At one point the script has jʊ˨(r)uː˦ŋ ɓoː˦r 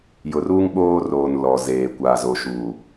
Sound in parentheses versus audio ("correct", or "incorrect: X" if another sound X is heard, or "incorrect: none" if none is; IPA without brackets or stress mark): correct